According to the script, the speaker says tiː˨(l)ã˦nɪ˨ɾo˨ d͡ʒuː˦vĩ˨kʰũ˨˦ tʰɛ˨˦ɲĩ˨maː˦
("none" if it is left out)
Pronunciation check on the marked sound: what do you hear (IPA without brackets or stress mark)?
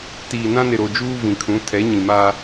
n